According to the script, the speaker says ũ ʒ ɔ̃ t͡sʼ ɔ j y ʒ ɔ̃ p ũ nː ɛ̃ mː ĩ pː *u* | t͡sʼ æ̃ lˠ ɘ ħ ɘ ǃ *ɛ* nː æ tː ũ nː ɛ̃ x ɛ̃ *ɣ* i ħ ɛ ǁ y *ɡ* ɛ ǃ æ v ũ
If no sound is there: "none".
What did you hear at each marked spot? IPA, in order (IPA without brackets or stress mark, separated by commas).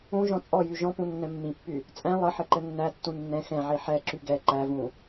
y, ɘ, ʕ, ɡ